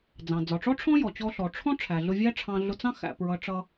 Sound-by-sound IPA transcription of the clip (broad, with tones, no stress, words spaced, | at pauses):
d͡zɑ̃˩ d͡zɒ˩ʈ͡ʂɔ˥ʈ͡ʂʰɔ̃˥jɔ˩ t͡ɕɔ˧ɬɔ˩ʈ͡ʂʰɔ̃˥ ʈ͡ʂʰæ˩ɮʊ˧vʲæ˥ ʈ͡ʂʰɑ̃˧ ɮʊ˧t͡sɑ̃˥ xæ̰˧ pɹʌ˧ ʈ͡ʂʌ˧